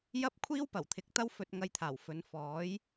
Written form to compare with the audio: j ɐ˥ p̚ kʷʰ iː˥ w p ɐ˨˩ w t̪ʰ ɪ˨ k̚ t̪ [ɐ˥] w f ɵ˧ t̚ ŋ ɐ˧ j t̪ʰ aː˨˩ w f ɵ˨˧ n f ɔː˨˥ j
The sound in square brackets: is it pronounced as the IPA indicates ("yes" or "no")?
yes